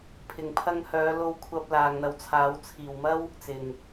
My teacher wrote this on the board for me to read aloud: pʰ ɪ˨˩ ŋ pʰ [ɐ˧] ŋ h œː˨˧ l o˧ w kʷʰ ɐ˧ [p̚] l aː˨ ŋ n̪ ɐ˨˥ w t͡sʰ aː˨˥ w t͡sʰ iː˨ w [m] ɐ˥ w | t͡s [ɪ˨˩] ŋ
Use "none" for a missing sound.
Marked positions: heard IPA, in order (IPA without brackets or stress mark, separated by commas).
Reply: ɐ˧, p̚, m, ɪ˨˩